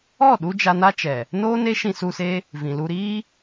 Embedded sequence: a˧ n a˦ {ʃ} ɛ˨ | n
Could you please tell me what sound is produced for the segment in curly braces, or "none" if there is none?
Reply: t͡ʃ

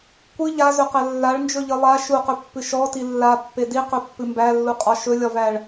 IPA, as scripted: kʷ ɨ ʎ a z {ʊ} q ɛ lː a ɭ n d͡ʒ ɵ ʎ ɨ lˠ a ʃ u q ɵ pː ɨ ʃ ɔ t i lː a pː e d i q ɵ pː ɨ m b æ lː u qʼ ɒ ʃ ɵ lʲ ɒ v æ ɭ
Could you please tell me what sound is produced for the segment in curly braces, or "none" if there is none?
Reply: ɵ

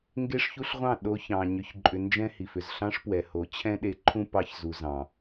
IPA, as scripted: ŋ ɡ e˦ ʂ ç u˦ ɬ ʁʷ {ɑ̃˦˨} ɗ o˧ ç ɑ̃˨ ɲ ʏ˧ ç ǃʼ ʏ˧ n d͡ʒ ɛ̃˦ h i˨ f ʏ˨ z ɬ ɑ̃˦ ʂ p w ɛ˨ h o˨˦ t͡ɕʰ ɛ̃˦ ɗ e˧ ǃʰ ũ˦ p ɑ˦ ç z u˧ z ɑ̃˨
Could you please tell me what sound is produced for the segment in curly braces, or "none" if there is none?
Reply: ɑ̃˦˨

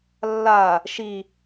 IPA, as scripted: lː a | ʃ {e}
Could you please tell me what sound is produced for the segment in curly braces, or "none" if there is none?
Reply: i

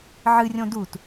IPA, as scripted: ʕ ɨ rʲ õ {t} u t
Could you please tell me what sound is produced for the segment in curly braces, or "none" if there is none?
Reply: d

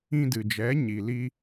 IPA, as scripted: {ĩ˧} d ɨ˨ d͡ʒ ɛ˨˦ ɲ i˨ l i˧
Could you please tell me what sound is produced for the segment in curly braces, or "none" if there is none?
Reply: ĩ˧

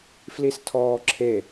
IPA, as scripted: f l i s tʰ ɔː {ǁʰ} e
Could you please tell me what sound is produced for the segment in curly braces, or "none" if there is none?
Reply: ǁʰ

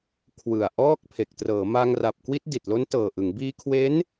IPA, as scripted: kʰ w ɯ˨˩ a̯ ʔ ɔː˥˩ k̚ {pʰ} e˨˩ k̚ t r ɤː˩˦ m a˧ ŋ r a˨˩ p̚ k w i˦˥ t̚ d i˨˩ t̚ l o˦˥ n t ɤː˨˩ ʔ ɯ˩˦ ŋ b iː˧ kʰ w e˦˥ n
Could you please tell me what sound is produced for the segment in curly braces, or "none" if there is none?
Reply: pʰ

